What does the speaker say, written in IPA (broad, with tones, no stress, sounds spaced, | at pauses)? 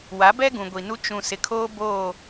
w a˨˦ b ɛ˦ ɡ ũ˨ ɡʷ i˨ n u˦ t͡ʃ ũ˨ s ɪ˨ kʰ oː˦ b oː˦˨